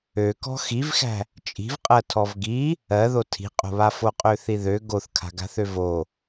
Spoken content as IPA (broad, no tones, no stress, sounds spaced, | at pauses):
ø k ɔ̤ x i v x æ̤ | t͡ʃʼ i̤ v qʼ ɜ tʰ ɔ v ɡ i | ɜ ð o tʰ i̤ qʼ o̤ β a f o qʼ ø θ i ð ø ɡ o θ kʰ a̤ ɡ a̤ θ ø v o